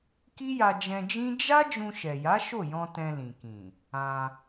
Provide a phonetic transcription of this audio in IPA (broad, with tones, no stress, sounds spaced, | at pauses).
k i˦ j a˧ d͡ʒ ɛ̃˧ d͡ʒ ĩ˦ d͡ʒ a˦ d͡ʒ ũ˧ ʃ ɛ˨ j a˨˦ ʃ o˦˨ j ɔ̃˧ t ɛ̃˧ l ĩ˨ k ĩ˨ | ã˧